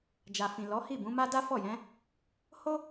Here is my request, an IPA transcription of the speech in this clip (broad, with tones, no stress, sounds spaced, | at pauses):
d͡ʒ a˨ f ĩ˨ l ɔ˨˦ h i˦˨ b ũ˨˦ m a˦ d a˦ f ɔ˦˨ j ɛ̃˨˦ | h o˦